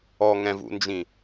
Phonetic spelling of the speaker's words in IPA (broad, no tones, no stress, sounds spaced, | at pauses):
ɔ ŋ ɛ̃ v ṵ n d͡ʒ ĩ